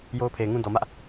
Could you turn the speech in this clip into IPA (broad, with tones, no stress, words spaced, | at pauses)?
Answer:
jo˦ʊ̯pʰe˨ɪ̯ŋũ˦ dɔ˨mä˦ʔ